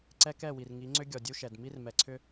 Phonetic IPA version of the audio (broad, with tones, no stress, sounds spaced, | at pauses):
ǀ ɛ˦ k ɛ˦˨ w i˨ r ŋ i˨˦ ŋ͡ǀ ʏ˦ ɡʲ ɔ˨ dʲ u˦ ʃ ɛ˨ d m i˦ r m ɛ˨ ǀʰ ʏ˦